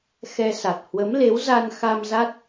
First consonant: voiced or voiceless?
voiceless